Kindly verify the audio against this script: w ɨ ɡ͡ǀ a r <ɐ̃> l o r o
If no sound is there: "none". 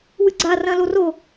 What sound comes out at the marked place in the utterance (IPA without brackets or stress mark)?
ɐ̃